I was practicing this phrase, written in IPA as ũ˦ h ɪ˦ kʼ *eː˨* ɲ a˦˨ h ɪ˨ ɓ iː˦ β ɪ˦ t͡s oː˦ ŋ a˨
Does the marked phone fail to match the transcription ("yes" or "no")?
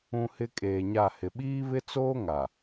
no